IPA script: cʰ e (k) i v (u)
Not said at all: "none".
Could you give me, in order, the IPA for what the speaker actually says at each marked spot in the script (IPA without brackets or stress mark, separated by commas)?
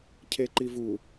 ǃ, u